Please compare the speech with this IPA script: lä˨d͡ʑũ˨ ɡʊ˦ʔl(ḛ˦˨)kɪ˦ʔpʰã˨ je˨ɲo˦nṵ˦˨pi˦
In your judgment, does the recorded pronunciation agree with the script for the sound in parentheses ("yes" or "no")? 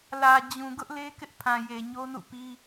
no